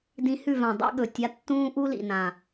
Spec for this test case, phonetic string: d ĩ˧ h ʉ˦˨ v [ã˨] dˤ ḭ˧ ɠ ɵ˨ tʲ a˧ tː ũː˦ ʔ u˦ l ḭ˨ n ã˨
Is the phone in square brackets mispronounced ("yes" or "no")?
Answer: no